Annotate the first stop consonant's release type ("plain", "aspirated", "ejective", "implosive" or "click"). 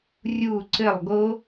click